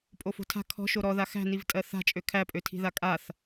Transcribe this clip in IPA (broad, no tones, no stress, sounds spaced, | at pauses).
pʼ o f o̤ tʰ a̤ kʰ ɔ̤ ʃ o ɾ ɔ ð a x æ̤ n i v tʼ ɜ θ a̤ t͡ʃʼ ø kʰ æ pʼ ø tʰ i̤ ð a kʼ a θ